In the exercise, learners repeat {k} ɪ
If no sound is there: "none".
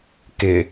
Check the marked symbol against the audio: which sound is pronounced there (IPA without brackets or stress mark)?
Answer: k